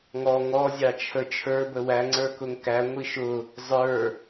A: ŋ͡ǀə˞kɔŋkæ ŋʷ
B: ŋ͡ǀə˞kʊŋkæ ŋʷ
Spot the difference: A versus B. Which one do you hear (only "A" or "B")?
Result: B